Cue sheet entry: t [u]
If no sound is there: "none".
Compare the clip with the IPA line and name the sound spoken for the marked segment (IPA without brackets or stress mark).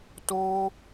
u